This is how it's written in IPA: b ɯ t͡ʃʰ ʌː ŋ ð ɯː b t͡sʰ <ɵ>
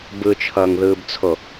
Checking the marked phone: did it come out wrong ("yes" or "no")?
yes